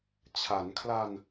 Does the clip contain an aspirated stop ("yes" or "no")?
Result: yes